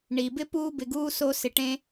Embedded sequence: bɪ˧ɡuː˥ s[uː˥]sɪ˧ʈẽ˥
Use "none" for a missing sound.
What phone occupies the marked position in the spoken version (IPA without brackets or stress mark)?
oː˥